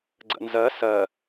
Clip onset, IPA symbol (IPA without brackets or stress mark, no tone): ɡ͡ǀ